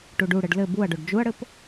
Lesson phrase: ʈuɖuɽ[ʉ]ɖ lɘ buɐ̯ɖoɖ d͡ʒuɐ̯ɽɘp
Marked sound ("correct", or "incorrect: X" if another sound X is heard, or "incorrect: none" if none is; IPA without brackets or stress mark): incorrect: ɘ